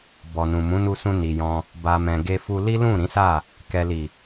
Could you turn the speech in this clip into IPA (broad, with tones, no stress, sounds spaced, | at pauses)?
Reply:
b ɔ˨ n ũ˨ m ũ˨˦ n u˧ s ũ˧ n i˨ j ɔ̃˧ | b a˨ m ɛ̃˨ ɡ e˧ f u˧ l i˦ l ũ˦˨ ɾ ĩ˨˦ s a˦˨ | k ɛ˨ l i˨